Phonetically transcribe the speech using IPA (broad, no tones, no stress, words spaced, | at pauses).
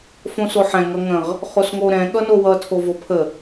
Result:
fõsoħɛ̃ ŋʌŋə̃ʁ | χosŋoɾɛ̃ ɠʌnowʌ tʰovopʰə